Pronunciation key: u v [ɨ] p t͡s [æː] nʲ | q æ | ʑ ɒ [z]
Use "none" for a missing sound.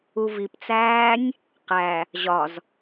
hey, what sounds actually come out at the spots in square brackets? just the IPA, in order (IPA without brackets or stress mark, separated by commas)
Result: i, æː, z